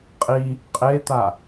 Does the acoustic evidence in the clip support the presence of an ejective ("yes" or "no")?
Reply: yes